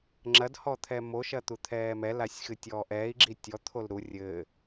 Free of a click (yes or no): no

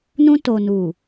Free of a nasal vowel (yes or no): no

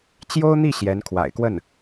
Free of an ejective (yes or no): yes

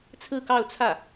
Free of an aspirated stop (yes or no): no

